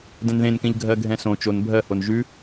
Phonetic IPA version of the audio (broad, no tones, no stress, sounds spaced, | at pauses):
d ɛ̃ n ð ẽ n k ɛ̃ ʎ ɡʱ ɜ ɡʱ ɛ̃ s õ t͡ʃ o n bʱ ɜ h o n ʒ ʉ